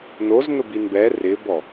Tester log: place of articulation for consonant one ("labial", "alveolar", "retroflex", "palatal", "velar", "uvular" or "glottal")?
alveolar